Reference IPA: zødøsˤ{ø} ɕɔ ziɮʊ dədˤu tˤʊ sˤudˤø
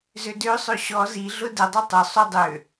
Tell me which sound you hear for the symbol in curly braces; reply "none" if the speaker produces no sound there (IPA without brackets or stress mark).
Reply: ø